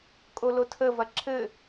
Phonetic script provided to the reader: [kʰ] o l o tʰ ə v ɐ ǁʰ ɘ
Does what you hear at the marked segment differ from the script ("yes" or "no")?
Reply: yes